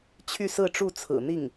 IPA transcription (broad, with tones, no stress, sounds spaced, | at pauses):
t͡ɕʰ y˥˧ s ɹ̩˥˧ ʈ͡ʂ u˥˩ t͡sʰ ɹ̩˨˩ n̪ i˥˩ ŋ